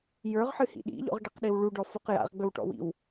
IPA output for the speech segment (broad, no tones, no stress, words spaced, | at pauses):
jə˞ʁħɨhḭ ɗḭʎɔ̰ʁɖiqɗiw ɭuɖɔfuq ja̰ʁɡ͡bɵwʈɔ̰wḭw